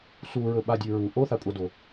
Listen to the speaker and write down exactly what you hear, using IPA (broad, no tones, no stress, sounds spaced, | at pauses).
s u ɹ ɵ ɓ a dʲ ʉ ɹ u ʔ o θ a kʷʼ a d o